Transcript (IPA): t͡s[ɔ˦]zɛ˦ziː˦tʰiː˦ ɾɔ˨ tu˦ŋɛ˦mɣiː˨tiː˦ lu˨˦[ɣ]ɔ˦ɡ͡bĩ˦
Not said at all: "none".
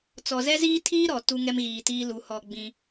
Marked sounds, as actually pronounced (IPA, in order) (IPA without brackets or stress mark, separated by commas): ɔ˨, h